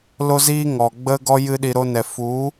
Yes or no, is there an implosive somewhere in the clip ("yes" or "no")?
yes